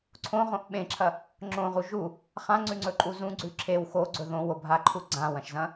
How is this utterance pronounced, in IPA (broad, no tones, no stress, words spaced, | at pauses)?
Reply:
ǀʰõʁõʔ ɓẽǁʰɐ | ŋ͡ǁõʁu ʒu | χãŋ͡ǀʉŋ͡ǀɵǃʼu zũɡ͡ǀʉ ǁʰew xoɡ͡ǀɵ ðõwobʱaǃʰu ɡ͡ǀãwɐ̃ʃzɐ̃